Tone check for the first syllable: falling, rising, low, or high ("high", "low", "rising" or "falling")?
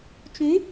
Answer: rising